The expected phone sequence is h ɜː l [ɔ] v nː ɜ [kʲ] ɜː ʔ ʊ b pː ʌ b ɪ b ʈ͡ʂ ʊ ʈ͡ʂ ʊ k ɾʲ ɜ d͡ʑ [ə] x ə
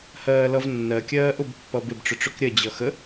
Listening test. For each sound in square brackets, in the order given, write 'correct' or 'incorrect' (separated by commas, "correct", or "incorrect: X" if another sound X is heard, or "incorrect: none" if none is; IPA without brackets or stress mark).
incorrect: ʌ, correct, incorrect: ʌ